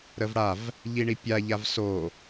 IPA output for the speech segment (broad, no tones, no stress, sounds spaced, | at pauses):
ɾ ə v ɽ a v | ʎ i ɳ i pʲ a ʎ a v s o